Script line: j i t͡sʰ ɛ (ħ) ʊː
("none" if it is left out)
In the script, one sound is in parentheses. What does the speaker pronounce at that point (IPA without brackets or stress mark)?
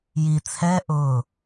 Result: ʔ